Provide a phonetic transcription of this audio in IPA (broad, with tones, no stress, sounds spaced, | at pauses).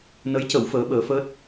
n ə˧˥ j c ə˨˩˦ w f əː˧˥ ɓ əː˧˥ f əː˦˥ t̚